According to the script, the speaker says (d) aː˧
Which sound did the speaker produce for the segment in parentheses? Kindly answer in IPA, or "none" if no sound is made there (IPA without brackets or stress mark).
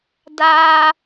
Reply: d